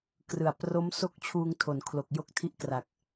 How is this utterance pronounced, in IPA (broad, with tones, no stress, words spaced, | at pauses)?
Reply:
krɯ˨˩a̯ pro˦˥mso˥˩k̚ t͡ɕʰuː˧ŋtʰo˩˦nkʰlo˨˩k̚ jo˥˩k̚tʰi˦˥ʔkra˨˩k̚